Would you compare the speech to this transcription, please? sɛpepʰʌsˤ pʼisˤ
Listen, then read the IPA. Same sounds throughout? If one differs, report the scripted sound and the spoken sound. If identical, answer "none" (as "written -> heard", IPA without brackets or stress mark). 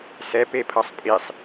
none